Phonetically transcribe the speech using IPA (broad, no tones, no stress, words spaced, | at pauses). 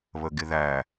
βəɡɪðæ